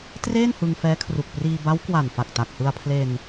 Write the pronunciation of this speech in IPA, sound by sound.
t r eː˥˩ n h ɯ˧ ŋ f ɛː˦˥ kʰ r u˨˩ k̚ p r iː˧ b a˦˥ w k w a˨˩ n f a˨˩ k̚ t a˨˩ k̚ h ɯ˧ a̯ pʰ l e˧ n

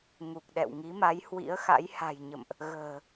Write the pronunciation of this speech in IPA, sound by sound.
ŋ u˨˩ k̚ ɗ ɛ̰˧˨ w ŋ i˨˦ m a˨˦ j h w ḭ˧˥ ə̯ x a̰˧˥ j h a̤˨˩ j ɲ ə̰˧˨ m ʔ | ɣ ə̤ː˨˩

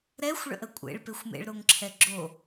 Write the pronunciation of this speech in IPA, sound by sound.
ɾ ɛ xʷ ɭ ə̰ ʔ ə kʷʼ ḛ ɭ p e xʷ m ḛ ɭ ɾ o ŋ ǁʰ ɛ ɡ͡ǁ o

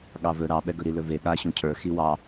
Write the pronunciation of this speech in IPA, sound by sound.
ɠ ɑ v ɵ ɾ ɑ ɓ ɛ ɡ ɵ ɾ i l ɵ v e ɠ a ɕ ũ cʰ ə˞ x i w ɑ

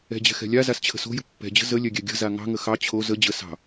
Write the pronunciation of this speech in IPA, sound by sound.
ɛ̤ d͡ʑ ɛ̤ x ɛ̤ lʲ a z a s t͡ɕʰ ə̤ s o̤ j ə̤ pː ɛ̤ d͡ʑ ə̤ z ə lʲ ɛ ɡʲ ɛ ɡʲ ə̤ z a ŋ ɑ̤ ŋ ə x ɑ t͡ɕʰ o z ə d͡ʑ ə s ɑ̤

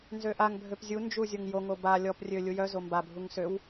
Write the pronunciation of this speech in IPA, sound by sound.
n z ø ʔ a ŋ bʱ ø p zʲ u n d͡ʒ u zʲ o ŋ j o ŋ o b a lʲ ɔ p rʲ ø lʲ u j œ z o m b a bʱ u ŋ s ø w

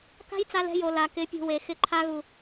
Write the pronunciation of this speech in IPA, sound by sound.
k a̤˦ j t͡s a˧ l ɛ̤˧ j o˨ l a˨ k ɪ˨˦ pʲ ṳ˨ w e˨ x ɪ˧ ǃʰ a˧ ɣ u˨

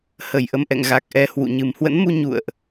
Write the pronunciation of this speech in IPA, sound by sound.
h ə˧˩ j ʔ ə˧ m ʔ ɛ̰˧˨ ŋ ɣ a˨˩ k̚ ʔ ɛ˨˩ h w ṵ˧˨ ɲ ɨ˨˩ m h w ə̰˧˥ n m u˧ ɲ ṵ˧˨ ə̯ ʔ

